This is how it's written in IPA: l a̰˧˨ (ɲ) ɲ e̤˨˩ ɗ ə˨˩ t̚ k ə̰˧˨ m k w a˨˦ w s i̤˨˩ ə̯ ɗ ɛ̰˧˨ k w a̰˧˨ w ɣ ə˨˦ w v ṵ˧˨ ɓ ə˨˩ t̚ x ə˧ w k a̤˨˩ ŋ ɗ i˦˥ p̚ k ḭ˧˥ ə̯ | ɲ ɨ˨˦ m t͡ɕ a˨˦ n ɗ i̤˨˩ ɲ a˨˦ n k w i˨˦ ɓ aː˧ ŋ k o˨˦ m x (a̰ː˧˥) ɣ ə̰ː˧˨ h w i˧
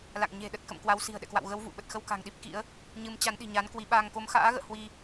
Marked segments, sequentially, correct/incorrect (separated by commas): incorrect, correct